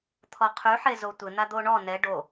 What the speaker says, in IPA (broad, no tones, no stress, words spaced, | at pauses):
t̪ʰɔqʰyħezo tʷɪn̪ad̪o ɳɔ nɛ ɖo